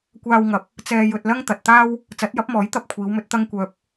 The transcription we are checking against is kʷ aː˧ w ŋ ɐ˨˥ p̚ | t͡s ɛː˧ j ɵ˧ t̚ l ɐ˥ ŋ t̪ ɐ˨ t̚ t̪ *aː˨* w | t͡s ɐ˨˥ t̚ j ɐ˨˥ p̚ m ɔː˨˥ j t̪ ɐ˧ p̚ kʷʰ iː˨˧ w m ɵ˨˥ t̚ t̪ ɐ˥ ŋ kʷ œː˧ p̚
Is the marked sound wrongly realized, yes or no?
yes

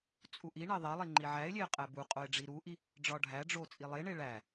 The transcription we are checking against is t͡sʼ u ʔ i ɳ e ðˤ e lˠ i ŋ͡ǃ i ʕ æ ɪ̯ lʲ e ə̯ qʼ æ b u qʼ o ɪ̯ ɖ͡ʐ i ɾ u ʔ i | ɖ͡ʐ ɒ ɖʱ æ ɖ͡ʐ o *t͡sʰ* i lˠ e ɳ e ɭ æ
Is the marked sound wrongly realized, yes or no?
yes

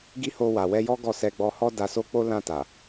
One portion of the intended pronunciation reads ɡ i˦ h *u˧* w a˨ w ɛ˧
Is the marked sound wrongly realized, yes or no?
yes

